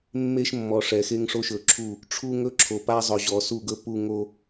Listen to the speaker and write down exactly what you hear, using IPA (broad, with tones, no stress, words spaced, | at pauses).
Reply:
mːe˦ʃmːɔ˨ ʂɛ˨xe˦ŋʂo˦ ʃɵ˨ǁʰu˦˨ | ʈ͡ʂʰu˦ŋɵ˦ǁʰo˨ pa˦zˤɵ˨ʑɔ˨ su˦˨ɡɵ˦ pu˦ ŋo˦